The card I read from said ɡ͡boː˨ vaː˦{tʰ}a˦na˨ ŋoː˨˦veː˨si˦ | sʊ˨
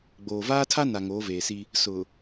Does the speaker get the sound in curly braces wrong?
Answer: no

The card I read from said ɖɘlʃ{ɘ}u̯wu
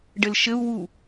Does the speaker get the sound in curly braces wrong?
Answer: no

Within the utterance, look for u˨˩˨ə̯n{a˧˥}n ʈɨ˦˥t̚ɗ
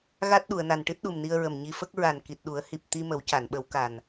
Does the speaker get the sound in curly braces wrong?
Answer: yes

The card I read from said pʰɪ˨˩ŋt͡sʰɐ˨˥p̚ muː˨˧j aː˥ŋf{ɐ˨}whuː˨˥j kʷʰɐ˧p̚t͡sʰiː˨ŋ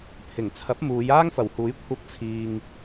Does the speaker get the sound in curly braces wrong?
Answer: yes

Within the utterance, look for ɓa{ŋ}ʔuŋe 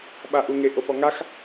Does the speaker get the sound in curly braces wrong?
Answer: yes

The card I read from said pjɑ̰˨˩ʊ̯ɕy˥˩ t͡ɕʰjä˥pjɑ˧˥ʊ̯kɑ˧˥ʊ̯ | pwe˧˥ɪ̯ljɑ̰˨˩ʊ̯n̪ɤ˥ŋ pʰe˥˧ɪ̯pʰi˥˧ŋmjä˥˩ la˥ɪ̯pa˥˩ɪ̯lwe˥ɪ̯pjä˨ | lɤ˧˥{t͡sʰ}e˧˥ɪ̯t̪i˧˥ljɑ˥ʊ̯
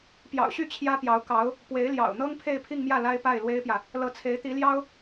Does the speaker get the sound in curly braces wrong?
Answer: no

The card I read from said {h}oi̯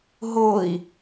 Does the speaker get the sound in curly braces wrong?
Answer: yes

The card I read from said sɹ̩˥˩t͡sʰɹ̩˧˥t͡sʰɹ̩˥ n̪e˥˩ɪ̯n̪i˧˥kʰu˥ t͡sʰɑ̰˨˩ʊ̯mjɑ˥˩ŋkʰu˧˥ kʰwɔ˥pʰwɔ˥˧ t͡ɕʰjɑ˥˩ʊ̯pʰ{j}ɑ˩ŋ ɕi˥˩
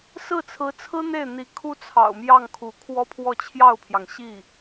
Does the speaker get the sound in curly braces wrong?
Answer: no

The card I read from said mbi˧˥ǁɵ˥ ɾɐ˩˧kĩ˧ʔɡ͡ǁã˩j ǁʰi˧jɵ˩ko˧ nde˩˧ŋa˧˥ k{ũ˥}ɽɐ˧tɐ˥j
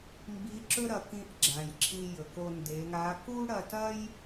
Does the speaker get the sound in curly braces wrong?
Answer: yes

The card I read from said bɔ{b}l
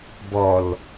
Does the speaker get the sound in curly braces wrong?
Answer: yes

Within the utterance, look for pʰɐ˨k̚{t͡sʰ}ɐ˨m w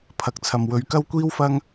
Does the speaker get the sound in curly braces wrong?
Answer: no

